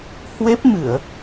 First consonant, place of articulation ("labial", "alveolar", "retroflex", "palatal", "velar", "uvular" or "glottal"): glottal